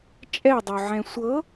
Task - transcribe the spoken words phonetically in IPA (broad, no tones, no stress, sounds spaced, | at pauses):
t͡ʃʼ ɛ dˤ o ʕ ɛ̃ sʷ ɤ